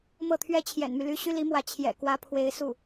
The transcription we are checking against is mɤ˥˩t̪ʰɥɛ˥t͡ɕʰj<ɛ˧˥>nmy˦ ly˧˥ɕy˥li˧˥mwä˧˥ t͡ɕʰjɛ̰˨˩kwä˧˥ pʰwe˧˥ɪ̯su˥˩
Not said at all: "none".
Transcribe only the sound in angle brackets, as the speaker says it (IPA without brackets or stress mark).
ɛ̰˨˩